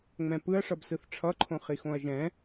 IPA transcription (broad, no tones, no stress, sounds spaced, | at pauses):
ŋ͡m ɛ̃ p ɯ ɐ̯ ʂ ʌ b s ɯ θ ʈ͡ʂʰ ʌ ǃʰ õ χ i x õ ɐ̯ ʒ ɛ̃